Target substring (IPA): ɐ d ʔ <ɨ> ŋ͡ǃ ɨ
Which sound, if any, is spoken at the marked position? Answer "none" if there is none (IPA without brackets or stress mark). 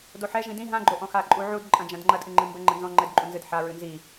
ɨ